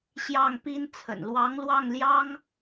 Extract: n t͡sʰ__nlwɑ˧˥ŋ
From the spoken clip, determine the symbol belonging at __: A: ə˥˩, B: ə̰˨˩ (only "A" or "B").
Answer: B